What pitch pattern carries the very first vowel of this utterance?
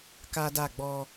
high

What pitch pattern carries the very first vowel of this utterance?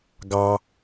low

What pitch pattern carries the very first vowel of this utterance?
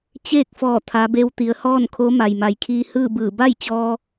falling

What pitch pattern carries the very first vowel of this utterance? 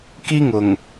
high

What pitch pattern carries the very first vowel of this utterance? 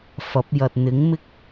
rising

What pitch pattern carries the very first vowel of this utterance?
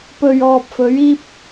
low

